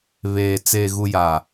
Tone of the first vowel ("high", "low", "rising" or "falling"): low